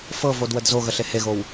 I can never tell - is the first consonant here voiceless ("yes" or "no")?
yes